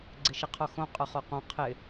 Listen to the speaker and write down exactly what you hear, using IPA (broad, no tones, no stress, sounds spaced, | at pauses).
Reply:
ɡ͡ǀ ɪ ʃ ɪ qʰ o x õ qʼ ʊ χ o q õ qʰ ɪ